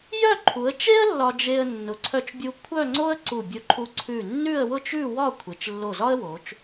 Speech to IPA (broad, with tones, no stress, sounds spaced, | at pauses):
j œ˥˧ ǃʰ u˩˧ ə̯ t͡ʃ e˥ ə̯ lː ɒ˧ d͡ʒ e˧ ə̯ nː ʊ˩˧ ǀʰ œ˧ t͡ʃ bʲ u˧ kʷʰ œ˥˧ ŋ͡ǀ o˥ ə̯ ǀ u˧˩ bʲ ʊ˧ ǃʰ u˧ ǀʰ ʉ˧˩ nː ʉ˥˧ ə̯ w ʊ˥˧ t͡ʃ ʉ˥˧ w ɒ˥˧ kʷʰ e˩˧ t͡ʃ lː o˧˩ z ɒ˥ ə̯ w o˩˧ t͡ʃ